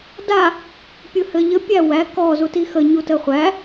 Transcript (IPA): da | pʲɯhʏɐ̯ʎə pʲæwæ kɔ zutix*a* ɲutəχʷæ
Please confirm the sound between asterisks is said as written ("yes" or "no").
no